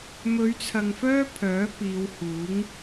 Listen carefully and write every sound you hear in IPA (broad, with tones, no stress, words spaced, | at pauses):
mɵ˨˧ɥt͡sʰɐ˨ŋfœː˥ pʰœː˨˥piː˨˧whuː˨˥ŋ